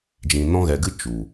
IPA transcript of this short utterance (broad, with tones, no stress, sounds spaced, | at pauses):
d͡ʒ ĩ˨ n ɔ̃˧ ɣ ɛ˨ ɡ ɨ˦˨ t͡ʃ u˨